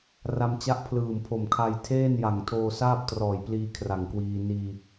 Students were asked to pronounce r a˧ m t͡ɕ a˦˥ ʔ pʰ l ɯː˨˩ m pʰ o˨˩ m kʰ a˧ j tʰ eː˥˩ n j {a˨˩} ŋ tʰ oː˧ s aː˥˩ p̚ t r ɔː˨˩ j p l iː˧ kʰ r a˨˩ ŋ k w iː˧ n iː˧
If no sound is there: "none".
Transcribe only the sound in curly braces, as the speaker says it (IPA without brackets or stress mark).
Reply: a˨˩